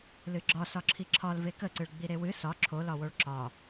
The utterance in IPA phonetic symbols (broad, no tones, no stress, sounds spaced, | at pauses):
l ɨ ɡ͡ǁ ɒ s ɒ ǁʰ i ǁʰ ɒ l v e k ə ǀ ɨ ɭ ɡ͡b i ɾ e w ɨ s ɒ ǁʰ o l ɒ w o ɭ ǁ ɒ